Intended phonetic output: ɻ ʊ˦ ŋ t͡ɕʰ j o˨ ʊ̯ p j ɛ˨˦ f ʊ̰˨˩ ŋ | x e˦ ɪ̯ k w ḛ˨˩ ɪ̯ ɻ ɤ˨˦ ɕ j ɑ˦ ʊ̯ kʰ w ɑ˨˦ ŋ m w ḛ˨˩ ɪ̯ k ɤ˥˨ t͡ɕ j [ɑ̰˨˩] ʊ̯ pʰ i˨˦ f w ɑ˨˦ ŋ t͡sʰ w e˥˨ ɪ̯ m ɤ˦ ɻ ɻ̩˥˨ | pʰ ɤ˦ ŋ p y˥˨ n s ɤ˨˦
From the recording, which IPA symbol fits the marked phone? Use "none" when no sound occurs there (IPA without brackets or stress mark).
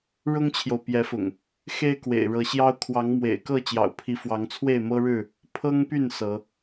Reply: ɑ̰˨˩